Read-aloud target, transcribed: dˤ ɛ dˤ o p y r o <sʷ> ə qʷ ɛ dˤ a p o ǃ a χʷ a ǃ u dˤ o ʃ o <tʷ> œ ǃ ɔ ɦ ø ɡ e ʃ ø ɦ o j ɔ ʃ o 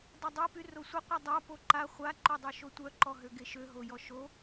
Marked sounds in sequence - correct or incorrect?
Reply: correct, correct

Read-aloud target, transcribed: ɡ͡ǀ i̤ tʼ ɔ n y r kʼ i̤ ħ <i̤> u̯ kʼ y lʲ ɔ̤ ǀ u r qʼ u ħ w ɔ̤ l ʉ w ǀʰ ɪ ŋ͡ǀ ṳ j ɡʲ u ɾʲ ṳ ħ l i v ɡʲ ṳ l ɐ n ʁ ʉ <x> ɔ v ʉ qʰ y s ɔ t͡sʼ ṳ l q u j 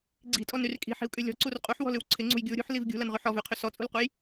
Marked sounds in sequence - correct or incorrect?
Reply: correct, incorrect

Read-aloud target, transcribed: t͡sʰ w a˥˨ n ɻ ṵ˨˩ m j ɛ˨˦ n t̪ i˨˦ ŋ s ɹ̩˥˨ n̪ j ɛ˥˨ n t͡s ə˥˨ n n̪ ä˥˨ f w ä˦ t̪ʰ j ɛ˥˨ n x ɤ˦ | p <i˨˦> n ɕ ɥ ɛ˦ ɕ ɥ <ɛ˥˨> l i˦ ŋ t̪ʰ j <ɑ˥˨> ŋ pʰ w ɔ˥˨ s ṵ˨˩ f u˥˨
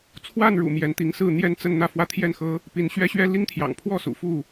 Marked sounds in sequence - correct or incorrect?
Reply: correct, incorrect, incorrect

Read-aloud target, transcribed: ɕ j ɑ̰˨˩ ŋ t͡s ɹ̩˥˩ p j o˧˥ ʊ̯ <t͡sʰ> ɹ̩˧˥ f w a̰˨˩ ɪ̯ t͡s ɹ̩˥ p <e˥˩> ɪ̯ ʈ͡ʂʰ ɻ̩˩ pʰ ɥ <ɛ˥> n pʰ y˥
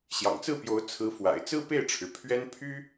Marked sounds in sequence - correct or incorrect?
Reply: correct, correct, correct

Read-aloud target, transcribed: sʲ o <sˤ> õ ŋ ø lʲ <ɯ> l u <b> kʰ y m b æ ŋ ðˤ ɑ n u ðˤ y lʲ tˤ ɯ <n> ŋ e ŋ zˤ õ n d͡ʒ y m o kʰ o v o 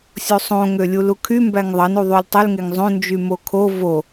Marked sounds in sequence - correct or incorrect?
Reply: correct, incorrect, incorrect, incorrect

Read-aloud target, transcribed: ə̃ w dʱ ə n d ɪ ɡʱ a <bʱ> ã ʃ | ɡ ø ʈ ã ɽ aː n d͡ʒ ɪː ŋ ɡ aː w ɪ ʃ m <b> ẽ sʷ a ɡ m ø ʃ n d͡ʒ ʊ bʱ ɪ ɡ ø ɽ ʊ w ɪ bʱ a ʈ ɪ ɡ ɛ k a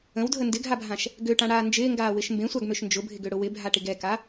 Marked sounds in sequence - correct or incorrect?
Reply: correct, correct

